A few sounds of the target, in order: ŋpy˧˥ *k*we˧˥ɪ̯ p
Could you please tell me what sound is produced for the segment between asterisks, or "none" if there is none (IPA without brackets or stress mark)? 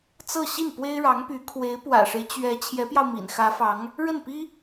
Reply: kʰ